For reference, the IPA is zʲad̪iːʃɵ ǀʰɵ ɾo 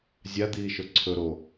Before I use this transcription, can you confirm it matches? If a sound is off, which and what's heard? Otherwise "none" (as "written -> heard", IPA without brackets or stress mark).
none